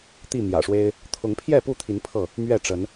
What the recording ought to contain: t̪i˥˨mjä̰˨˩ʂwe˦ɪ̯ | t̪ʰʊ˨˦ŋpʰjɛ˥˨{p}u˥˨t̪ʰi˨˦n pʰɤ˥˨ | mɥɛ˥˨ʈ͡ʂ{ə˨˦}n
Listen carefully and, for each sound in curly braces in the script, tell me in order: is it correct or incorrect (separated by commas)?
correct, correct